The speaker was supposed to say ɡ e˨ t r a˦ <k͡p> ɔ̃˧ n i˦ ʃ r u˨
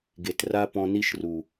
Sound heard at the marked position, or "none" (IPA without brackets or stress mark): p